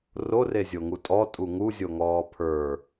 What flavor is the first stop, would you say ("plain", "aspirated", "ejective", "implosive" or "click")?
ejective